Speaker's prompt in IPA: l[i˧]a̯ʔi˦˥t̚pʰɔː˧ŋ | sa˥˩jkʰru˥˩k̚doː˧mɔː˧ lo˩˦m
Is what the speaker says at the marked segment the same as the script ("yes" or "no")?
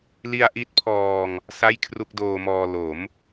yes